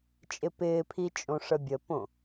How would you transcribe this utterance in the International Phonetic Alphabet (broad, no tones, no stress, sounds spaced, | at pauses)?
t͡ʃʼ ɪ p ɪː pʰ i t͡ʃʼ õ ʂ ə bʲ ə p õ